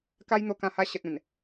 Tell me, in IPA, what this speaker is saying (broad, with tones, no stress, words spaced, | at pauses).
ka˦jn̪o˧kã˧ha˧ ɕə˨t̚ ẽ˨˩n